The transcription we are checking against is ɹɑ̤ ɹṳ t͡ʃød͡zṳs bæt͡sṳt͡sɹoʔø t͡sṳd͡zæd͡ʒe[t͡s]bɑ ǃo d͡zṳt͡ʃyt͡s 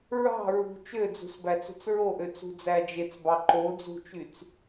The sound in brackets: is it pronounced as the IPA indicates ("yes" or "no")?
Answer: yes